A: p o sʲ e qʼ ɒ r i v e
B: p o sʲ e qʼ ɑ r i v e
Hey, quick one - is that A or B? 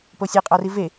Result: A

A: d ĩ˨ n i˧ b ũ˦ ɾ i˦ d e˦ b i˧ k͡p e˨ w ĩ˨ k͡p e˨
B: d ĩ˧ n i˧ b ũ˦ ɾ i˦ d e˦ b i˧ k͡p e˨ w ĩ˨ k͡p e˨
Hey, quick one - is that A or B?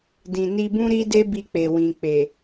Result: A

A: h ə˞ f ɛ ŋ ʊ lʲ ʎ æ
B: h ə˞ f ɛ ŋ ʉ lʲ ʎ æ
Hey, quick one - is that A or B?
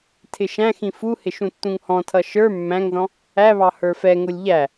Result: A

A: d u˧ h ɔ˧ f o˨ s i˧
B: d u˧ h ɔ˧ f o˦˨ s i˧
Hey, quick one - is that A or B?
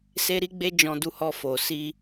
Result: A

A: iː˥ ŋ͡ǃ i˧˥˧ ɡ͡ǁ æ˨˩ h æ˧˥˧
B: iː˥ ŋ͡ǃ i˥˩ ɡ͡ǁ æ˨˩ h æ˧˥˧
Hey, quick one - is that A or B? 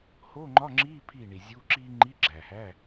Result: A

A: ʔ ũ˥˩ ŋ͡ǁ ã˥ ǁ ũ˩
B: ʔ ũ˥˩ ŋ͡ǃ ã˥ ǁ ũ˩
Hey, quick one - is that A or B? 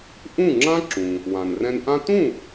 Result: A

